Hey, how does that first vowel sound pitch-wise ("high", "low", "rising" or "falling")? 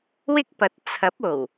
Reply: high